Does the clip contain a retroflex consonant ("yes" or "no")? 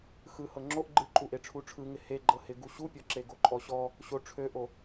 yes